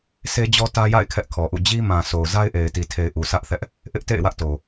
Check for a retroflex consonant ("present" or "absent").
absent